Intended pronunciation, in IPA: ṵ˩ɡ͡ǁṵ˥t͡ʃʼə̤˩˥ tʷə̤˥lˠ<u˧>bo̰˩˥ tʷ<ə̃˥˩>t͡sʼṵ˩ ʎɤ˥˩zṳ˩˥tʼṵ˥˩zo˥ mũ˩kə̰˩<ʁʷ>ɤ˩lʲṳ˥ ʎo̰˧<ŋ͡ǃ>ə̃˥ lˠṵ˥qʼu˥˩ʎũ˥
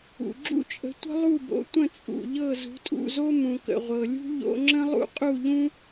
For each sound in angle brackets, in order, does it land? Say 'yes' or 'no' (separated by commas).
no, yes, yes, no